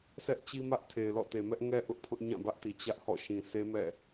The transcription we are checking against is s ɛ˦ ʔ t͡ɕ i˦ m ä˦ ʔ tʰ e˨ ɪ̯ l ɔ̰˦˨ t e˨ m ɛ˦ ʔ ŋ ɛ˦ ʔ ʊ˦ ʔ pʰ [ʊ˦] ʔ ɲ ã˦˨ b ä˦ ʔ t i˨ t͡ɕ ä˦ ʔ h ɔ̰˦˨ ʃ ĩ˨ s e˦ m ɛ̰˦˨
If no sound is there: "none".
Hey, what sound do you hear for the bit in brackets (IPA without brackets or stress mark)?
ʊ˦